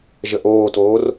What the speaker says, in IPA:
ʒ ə ʔ oː t oː r

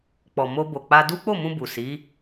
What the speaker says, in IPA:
k͡p ɔ˨ m o˧ b o˨ k͡p a˧ d u˦ k͡p o˦˨ m ũ˧ b u˨ s i˨˦

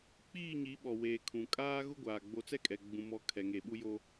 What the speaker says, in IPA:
k͡p iː˦˨ ɲ i˨˦ ɓ ɔ˨ w eː˨ kʰ ũ˨ kʼ aː˦ ɣ ʊ˦ ɡʷ aː˨ ɡ͡b o˦ t͡s ɛ˦ kʼ ɛ˨ ɡ͡b ũ˨ m ɔ˨ kʰ ɛ˨ ŋ e˨ ɓ u˦ j o˦

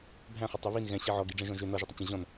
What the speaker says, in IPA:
bʱ æ̃ χ ə tˤ ɵ β i n ɣ ɛ̃ ɕ i ʕ ɔ ɡ i ɖ͡ʐ ɛ̃ ʒ ɔ̃ ʒ ø n ɔ ʒ i tˤ ə t͡ɕ ə̃ ʑ ɔ̃ n

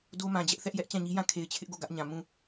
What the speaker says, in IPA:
d o˦ m ã˨ d͡ʑ ɛ˦ ʔ θ ɛ˦ ʔ j ɛ˦ ʔ t͡ɕ ã˦˨ ɲ i˦ j ã˦˨ kʰ e˨ ɪ̯ t͡ɕʰ ɪ˦ ʔ ɡ o˦˨ ɡ ä˦ ʔ ɲ ã˨ m ũ˦˨

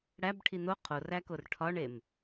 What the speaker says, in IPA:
ɽ æ b ʈʰ i n̪ o qʰ o r æ k o r ʈʰ ɒ ɳ e m

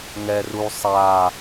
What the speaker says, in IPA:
ŋ ɛ r u sˤ a

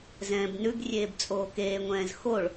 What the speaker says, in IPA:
z ɛ̃ː b n ʉ ɡ rʲ eː b t͡sʼ oː k eː ŋʷ ɛ̃ː z x o ɭ

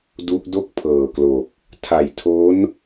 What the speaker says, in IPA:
d u˦˥ ʔ d o˥˩ k̚ pʰ ɤː˨˩ k l o˨˩ k̚ | tʰ a˨˩ j tʰ o˦˥ n

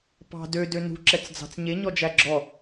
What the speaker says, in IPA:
p ɑ̤ d ø d ø n ṳ ǁ ɛ t͡s d͡z ɑ̤ t͡s ɲ e ɲ ɔ d͡ʒ æ ɡ͡ǁ ɔ

